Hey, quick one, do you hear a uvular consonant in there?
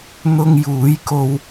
no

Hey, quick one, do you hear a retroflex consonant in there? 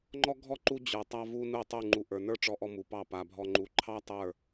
yes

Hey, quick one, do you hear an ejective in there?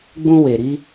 no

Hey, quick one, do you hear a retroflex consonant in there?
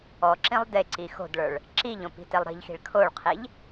yes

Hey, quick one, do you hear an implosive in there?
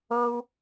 no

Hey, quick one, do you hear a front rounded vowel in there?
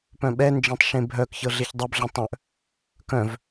yes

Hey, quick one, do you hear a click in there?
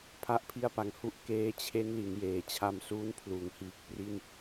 no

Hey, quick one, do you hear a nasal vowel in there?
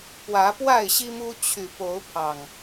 no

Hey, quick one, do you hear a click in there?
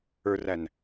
no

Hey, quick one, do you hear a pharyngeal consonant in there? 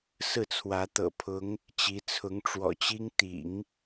no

